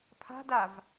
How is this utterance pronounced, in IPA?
pʰ a̤ d a v

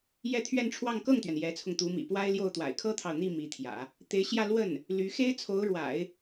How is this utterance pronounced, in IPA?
j ɛ˥˧ t̪ʰ ɥ ɛ˥˧ n ʈ͡ʂʰ w ɑ˥˧ ŋ k ɤ˥˩ ŋ t̪ ɥ ɛ˩ n j ɛ˧˥ t͡sʰ ʊ˧ ŋ t̪ u˧˥ m ḭ˨˩ p w a˥ ɪ̯ l j o˥˩ ʊ̯ t̪ w a̰˨˩ ɪ̯ kʰ ɤ˥ t̪ʰ ɑ˨ ʊ̯ n̪ i˥˩ m i˧˥ t̪ʰ j ä̰˨˩˦ | t̪ e˧˥ ɪ̯ ɕ j ä˥˧ l w ə˥˩ n | l y˧˥ x e˥ ɪ̯ t͡sʰ o˧˥ ʊ̯ ɻ w a̰˨˩˦ ɪ̯

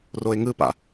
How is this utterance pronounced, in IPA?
r o ɪ̯ ŋ ɯ p a̰

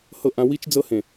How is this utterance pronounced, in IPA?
h ɤ˦˨ ʔ ã˦ w i˦ t͡ʃ d͡z ɤ˦ h ẽ˨

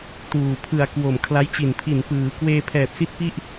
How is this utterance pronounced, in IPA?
t uː˨˩ pʰ ɯ˨˩ a̯ k w o˨˩ m kʰ l a˦˥ j t͡ɕ i˨˩ n pʰ i˨˩ n p ɯː˩˦ k w eː˧ pʰ ɛː˨˩ p̚ s i˥˩ t̚ p i˥˩ ʔ

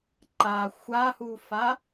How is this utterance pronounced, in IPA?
ǃ a xʷ a h u f a

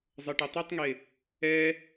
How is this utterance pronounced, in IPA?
zˤ ɤ ʈ ɤ tˤ ɯ tˤ ŋ e | ɛ

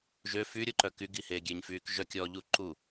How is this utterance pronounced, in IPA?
ʒ ø f y ɾʲ o ǃ œ k y ɡ i h eː ɡʲ e ɲ f yː k ʒ œ kʲ ɔː ʎ u ǃ u

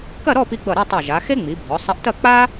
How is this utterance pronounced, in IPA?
k ɐ˥˧ ɾ ɔ˥˧ p i˧ ɡ͡b ʌ˧˩ ɾ ɨ˥˧ tˤ ʌ˧˩ ʒ a˩˧ x e˥ ŋ͡m i˩˧ bʱ ɔ˩˧ sˤ ɐ˧ ʔ t ɐ˥˧ k͡p a˥

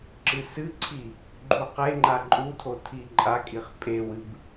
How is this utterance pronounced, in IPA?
ǁ ɨ s ɨ ǀʰ i | ɡ͡ǃ u q e ŋ͡ǃ a ǃʼ u tʰ o tʰ i ǃʼ a kʼ i χ pʼ e w ɨ b

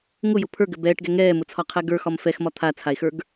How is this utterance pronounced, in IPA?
ŋ ʊ j ʊ pʰ ə˞ ɡ ɘ b ɛː ʈ ɡ ɛ ŋ ɛː m ʊ t͡sʰ ɒ qʰ ɛ ɡ ə˞ x ɒ m f ɛ x m ɒ t̪ʰ a t͡sʰ a e̯ x ə˞ ɡ

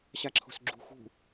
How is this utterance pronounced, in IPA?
ɕ a ǁʰ o̤ s ɡ͡ǁ ṳ x ṳ

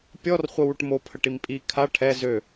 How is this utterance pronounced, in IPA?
pʲ ɔ r χʷ ə w u ʈ m o pʰ ə ʈ i m pʼ i kʰ a ʈʰ ɛ z ø

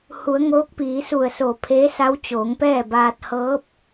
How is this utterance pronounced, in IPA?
h u˩˧ ə̯ ŋ oː˧˥ k̚ p iː˩˧ s u˧˩ ə̯ s oː˧˩ pʰ eː˧˥ s a˧˥ w t͡ɕ oː˩˧ ŋ p ɛː˥˨ b aː˧ t̚ h ɤː˧˥ p̚

